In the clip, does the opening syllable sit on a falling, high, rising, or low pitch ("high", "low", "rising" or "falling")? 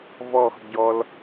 falling